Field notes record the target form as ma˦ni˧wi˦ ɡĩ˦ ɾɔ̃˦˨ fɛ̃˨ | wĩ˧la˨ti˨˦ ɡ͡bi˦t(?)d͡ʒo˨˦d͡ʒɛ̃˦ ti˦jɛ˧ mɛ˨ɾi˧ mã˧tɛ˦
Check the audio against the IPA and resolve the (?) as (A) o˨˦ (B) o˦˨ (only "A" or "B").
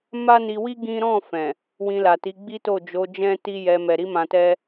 B